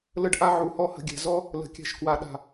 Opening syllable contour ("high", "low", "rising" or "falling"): high